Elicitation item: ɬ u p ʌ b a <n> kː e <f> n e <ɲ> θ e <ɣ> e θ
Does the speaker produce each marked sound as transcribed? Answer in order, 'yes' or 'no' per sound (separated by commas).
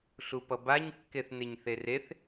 no, no, yes, no